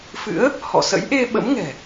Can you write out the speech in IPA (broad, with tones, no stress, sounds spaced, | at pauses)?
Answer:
f ɨ̰˧˥ ə̯ | h ɔ̰˧˨ s ə̰˧˥ j ʔ e˧ ɓ ə̰˧˥ m ŋ ɛ̤˨˩